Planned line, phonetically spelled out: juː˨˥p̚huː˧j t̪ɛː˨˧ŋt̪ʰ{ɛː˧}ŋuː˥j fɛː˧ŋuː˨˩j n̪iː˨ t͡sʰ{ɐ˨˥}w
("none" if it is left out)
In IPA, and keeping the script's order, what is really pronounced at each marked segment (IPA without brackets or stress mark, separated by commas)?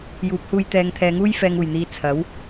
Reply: ɛː˨˧, ɐ˨˥